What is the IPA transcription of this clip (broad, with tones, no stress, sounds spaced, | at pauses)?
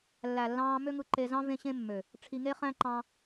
lː æ˨ lː ɑ̃ː˧ m ø˦ ŋ ɯ˧ ǃ e˧ z ɑ̃˦ v ẽ˦ ɕ ẽ˦ mː ø˨ | ʈ͡ʂʰ i˧ ŋ e˦ χ æ̃˦ ǃ ɑ̃˧